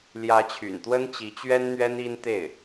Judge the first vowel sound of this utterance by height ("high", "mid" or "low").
low